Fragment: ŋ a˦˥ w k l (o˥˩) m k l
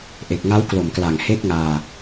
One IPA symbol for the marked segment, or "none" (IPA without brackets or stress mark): o˨˩